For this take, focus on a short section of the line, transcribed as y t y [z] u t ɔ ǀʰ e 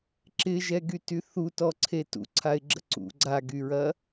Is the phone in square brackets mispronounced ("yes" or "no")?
yes